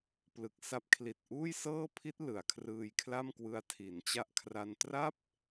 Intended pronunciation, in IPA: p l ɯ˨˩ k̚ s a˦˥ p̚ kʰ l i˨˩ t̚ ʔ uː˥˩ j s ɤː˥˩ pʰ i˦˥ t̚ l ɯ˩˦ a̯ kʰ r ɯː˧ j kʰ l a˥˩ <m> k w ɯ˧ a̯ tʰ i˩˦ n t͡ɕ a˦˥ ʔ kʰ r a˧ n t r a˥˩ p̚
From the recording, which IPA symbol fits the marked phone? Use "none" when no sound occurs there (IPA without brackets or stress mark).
m